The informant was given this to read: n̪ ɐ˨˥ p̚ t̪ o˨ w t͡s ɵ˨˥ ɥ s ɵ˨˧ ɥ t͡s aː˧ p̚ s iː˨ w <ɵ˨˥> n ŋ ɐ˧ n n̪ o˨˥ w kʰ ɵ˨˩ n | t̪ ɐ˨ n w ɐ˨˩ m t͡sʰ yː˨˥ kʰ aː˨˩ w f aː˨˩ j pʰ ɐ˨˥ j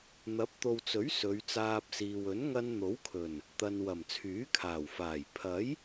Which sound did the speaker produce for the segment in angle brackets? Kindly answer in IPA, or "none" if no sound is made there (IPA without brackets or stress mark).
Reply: ɵ˨˥